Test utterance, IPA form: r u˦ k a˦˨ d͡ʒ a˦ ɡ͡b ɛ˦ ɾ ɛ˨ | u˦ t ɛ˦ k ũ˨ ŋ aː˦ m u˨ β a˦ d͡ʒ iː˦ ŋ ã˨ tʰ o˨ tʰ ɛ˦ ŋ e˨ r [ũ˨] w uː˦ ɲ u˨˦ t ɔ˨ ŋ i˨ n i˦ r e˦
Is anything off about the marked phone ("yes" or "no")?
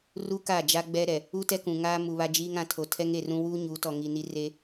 yes